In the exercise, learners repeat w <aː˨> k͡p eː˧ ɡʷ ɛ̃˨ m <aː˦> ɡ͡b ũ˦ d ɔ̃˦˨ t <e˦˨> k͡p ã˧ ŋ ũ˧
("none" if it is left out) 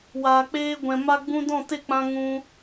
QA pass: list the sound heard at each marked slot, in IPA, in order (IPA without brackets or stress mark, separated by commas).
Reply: aː˨, a˦, e˦˨